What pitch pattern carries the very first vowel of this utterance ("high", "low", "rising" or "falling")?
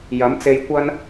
rising